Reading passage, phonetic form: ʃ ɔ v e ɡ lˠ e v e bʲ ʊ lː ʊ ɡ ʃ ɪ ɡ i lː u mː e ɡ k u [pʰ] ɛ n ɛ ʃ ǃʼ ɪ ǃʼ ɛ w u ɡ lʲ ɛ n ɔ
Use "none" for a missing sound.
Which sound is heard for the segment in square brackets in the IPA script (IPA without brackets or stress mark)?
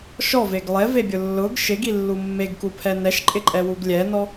pʰ